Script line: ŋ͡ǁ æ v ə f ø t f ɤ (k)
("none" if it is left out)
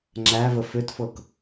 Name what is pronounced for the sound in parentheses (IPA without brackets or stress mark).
k